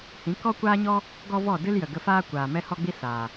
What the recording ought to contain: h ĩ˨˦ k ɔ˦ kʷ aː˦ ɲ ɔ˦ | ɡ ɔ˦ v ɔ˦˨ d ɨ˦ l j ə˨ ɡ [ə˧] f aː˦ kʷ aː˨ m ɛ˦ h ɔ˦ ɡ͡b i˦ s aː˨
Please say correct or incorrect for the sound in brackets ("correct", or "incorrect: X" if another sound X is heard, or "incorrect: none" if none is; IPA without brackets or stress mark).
correct